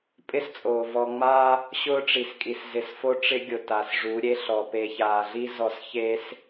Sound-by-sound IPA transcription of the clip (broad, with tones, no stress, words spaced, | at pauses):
pʼɪ˦st͡sʼoː˨ vɔ˨ŋ͡ma˦ | ɕʊː˦ʈ͡ʂi˨skʼi˨s zɪ˨sfo˦ ʈ͡ʂɪ˦ ɡʲʊ˨ ta˨sʐu˨˦ɾʲe˦ɬɔ˨ pe˨çaː˨ɮi˦ zɔ˨s çe˦s